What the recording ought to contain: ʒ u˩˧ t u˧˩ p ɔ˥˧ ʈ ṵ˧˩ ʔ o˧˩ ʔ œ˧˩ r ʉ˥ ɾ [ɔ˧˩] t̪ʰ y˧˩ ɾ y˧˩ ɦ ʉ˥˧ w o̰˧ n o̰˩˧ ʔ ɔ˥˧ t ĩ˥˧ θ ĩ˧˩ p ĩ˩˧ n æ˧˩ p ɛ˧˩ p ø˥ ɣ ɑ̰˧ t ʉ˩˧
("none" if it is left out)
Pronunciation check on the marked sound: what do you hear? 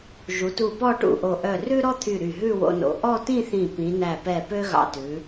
ɔ˥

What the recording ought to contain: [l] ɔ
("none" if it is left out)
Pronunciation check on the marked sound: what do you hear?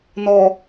n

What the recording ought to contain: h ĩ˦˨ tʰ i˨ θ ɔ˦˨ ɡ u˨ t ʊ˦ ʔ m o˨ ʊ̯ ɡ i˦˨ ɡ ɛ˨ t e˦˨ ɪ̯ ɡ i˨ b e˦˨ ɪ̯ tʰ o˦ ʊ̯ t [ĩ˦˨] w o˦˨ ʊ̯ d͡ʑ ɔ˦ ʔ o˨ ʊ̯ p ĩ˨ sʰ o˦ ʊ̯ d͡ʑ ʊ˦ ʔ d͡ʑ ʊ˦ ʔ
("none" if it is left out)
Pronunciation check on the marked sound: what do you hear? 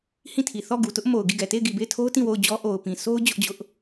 ĩ˦˨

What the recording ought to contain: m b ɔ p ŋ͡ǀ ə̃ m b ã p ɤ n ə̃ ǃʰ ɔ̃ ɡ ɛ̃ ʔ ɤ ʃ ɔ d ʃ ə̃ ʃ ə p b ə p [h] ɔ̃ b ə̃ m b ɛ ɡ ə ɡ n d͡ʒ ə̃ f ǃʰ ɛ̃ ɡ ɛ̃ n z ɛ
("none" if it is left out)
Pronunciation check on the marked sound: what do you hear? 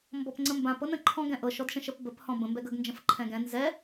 h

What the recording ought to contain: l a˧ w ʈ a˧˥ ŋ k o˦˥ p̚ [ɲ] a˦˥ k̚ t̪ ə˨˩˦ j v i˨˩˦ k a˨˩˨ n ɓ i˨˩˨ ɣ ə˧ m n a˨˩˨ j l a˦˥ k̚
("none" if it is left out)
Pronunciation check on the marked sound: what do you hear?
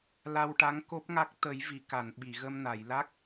ŋ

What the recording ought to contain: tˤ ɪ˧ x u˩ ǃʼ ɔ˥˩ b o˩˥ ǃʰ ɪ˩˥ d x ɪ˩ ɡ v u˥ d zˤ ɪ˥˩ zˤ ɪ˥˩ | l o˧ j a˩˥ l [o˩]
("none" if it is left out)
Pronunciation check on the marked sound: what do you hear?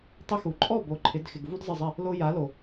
o˩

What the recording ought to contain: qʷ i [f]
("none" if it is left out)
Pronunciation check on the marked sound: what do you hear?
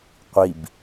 b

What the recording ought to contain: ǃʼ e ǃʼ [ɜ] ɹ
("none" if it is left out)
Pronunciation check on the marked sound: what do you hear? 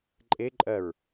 ɜ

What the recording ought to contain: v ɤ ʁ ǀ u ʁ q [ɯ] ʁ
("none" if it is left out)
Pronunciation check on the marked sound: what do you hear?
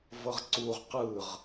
ɯ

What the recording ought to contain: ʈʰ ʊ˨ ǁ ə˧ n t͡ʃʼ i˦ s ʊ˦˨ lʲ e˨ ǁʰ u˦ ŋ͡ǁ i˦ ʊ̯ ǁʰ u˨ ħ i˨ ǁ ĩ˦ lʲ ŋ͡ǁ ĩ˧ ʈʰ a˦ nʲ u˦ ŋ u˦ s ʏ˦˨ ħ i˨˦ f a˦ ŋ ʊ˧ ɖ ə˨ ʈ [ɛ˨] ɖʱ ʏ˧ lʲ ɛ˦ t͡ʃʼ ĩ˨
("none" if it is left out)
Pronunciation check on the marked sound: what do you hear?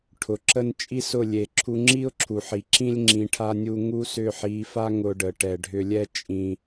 ɛ˨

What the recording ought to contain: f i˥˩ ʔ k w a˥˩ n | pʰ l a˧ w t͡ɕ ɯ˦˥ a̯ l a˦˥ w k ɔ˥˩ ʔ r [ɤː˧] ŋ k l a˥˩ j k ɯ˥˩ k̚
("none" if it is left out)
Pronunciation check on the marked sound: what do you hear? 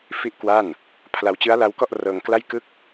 ɤː˧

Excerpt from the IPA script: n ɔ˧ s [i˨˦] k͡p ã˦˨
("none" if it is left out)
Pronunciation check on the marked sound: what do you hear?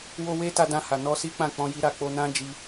i˦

